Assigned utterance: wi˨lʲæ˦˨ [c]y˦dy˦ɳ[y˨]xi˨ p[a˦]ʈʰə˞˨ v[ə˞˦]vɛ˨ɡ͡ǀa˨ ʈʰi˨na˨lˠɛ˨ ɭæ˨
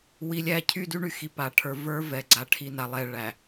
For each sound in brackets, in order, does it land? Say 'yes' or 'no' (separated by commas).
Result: no, yes, no, yes